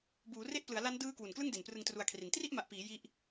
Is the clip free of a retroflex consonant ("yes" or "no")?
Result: yes